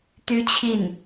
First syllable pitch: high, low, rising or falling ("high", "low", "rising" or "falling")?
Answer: high